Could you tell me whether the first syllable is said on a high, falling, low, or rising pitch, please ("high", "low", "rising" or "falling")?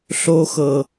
low